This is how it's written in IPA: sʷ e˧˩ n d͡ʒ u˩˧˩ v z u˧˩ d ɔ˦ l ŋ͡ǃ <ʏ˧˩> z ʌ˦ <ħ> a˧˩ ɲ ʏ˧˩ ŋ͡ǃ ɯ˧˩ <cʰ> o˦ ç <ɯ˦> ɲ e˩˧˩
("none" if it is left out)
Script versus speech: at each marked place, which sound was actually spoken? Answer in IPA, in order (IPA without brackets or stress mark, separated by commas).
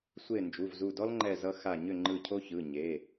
ɛ˧˩, x, cʰ, ɯ˩˧˩